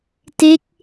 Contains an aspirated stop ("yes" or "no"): no